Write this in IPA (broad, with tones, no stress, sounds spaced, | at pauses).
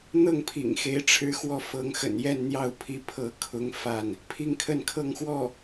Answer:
n̪ ɤ˥˩ ŋ pʰ ḭ˨˩ ŋ x e˧˥ ɪ̯ ʈ͡ʂʰ ɻ̩˥ x w ɔ˥˩ f ɤ˧˥ ŋ x ə̰˨˩ n j ɛ˥˧ n n̪ j ɑ˥˩ ʊ̯ pʰ i˧˥ pʰ ɤ˧˥ kʰ ʊ˧˥ ŋ f a˥˩ n | pʰ i˥˧ ŋ kʰ ə˥˧ n kʰ ɤ˥˧ ŋ x w ɔ˥˩